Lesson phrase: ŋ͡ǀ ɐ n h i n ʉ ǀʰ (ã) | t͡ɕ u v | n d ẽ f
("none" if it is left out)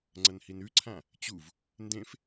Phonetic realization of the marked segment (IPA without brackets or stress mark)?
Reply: ã